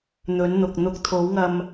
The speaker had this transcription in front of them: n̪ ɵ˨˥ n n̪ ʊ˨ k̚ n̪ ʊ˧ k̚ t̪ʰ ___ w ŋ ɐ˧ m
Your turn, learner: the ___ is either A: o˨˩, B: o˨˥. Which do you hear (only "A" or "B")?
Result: B